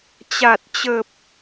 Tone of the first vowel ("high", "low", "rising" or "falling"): low